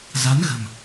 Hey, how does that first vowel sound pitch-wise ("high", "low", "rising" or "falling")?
rising